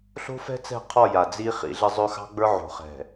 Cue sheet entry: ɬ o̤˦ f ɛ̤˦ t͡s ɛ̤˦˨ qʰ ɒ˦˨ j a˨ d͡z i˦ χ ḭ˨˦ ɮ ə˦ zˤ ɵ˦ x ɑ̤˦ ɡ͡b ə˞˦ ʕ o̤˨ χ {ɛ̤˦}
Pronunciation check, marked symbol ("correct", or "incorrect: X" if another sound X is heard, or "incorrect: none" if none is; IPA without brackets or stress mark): incorrect: ɛ̤˨